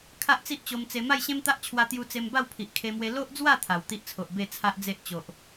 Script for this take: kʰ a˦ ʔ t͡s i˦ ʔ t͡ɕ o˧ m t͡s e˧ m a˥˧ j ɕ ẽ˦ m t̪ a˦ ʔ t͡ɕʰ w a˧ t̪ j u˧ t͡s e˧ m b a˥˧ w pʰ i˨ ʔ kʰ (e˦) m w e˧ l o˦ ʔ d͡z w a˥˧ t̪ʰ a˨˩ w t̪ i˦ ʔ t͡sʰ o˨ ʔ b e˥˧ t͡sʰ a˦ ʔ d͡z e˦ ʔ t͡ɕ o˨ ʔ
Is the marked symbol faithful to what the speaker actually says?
no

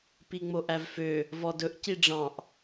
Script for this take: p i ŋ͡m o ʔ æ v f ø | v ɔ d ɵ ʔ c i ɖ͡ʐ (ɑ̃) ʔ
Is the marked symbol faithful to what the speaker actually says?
yes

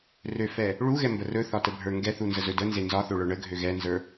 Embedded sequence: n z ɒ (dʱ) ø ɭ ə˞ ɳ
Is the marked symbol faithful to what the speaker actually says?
no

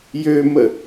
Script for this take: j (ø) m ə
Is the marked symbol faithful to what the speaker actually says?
yes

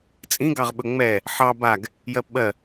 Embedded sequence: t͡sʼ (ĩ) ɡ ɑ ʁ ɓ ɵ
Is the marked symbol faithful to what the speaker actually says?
yes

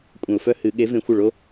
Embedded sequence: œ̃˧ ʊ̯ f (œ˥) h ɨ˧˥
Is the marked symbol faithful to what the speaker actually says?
yes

